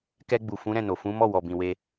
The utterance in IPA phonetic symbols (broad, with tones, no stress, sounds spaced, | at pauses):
k ɛ˧ ɡ͡b u˨ f ũ˨˦ ɾ ɛ̃˦˨ n o˨ f ũ˨˦ m ɔ˦˨ w ɔ˨ b ĩ˨ w e˧